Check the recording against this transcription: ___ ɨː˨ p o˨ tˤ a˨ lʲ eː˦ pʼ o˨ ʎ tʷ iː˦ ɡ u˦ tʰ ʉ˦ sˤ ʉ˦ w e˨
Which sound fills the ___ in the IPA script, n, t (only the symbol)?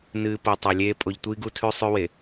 n